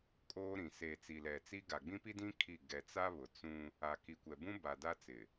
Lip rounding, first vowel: rounded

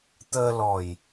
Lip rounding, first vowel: unrounded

